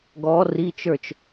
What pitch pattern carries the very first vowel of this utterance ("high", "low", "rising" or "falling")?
rising